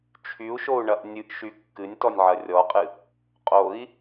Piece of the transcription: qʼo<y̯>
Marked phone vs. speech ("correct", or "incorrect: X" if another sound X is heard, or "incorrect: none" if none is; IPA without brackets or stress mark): incorrect: i̯